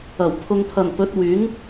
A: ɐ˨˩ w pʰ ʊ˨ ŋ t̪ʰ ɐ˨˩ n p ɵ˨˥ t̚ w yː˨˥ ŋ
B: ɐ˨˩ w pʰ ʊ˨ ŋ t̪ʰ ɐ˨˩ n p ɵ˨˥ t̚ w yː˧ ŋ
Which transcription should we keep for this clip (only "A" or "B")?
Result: A